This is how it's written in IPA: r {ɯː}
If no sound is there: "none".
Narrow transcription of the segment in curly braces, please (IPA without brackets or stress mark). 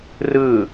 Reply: ɯː